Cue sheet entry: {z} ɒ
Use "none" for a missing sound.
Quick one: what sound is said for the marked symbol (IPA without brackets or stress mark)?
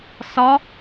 s